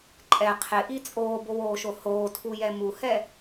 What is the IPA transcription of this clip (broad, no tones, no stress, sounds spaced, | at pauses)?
ǃʼ ɛ qʰ ɪ ʔ i t͡sʼ oː b o w oː ʃ o h oː tʰ u j ɛ m u h ɛ